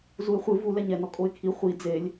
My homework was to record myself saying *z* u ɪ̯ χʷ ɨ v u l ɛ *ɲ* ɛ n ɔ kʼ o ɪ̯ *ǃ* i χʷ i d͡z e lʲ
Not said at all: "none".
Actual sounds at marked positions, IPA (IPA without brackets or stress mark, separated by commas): z, ɲ, kʰ